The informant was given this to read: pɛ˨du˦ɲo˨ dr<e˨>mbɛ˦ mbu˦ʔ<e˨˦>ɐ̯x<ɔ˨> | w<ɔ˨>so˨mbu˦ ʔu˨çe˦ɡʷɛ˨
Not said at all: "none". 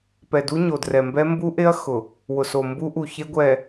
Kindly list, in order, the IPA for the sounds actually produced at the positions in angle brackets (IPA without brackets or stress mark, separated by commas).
ɛ˨, e˦, ʊ˨, ʊ˨